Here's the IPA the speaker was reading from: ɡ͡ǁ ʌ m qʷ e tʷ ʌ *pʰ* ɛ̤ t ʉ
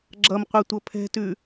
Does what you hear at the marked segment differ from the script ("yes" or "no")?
no